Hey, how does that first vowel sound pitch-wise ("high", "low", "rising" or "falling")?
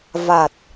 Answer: low